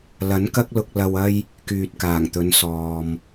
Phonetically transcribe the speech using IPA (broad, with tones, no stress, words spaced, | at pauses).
lɐ˨˥nkɐ˥k̚lʊ˧k̚ lɐ˨wɐ˧j | kyː˨t̚kaː˨˩ŋt̪ɵ˨˧n sɔː˨m